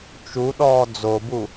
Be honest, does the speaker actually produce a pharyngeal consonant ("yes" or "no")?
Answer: no